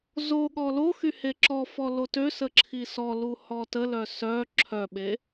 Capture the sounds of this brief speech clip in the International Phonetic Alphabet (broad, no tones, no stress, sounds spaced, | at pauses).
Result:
z o ɠ ɔ l o x y h e ǁ ɔ f ɔ l o t ø s ə ǁʰ i s ɔ l u h ɔ t ə l œ s œ ǁʰ œ ɓ e